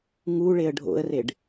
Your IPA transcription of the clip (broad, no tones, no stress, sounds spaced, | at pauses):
ŋ u ɭ e ə̯ ɖʱ o̰ ə̯ r e ɖ